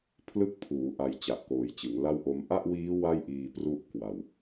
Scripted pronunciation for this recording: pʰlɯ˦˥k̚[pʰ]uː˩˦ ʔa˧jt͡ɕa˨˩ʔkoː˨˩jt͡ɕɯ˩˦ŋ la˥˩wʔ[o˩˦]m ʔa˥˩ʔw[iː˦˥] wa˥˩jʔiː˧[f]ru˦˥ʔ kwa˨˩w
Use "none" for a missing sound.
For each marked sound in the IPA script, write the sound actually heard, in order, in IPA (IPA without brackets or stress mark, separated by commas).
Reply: pʰ, o˦˥, iː˦˥, p